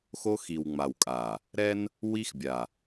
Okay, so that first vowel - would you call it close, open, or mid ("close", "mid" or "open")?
mid